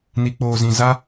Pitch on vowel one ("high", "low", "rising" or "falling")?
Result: low